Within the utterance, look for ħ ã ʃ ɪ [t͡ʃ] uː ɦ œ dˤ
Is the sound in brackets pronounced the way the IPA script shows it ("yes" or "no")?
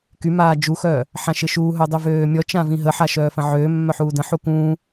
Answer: no